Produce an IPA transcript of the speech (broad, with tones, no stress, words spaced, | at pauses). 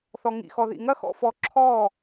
θɔ˨ŋḭ˨xɔ˨ ðḭ˨ŋɐ˦xɔ̰˧fɔ˨˦ ǁʰɔ˦˨